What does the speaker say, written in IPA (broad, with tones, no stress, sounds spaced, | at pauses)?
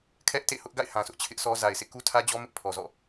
kʰ ɛ˦ ʔ t ḛ˦˨ h ʊ˦ ʔ ɡ a̰˦˨ ɪ̯ h ã˨ s ʊ˦ ʔ t͡ɕʰ ɪ˦ ʔ s ɔ˦ z a˨ ɪ̯ sʰ ḛ˦˨ k u˦ tʰ ä˦ d͡ʑ ɔ˦ m ɪ˦ ʔ pʰ ɔ˨ z ɔ̰˦˨